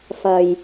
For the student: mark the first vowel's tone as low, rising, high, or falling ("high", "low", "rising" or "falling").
low